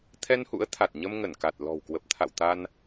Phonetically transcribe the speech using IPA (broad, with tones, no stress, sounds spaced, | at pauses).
t̪ʰ ɛ˧ n h ṵ˧˥ ə̯ t̪ʰ a˨˩ t̚ ɲ ə˧ m ŋ ə˧˩ n k a˨˩ t̚ l ɔ̤˨˩ w k w ə˨˩ p̚ t̪ʰ a̰˧˨ w t̪ a˧ n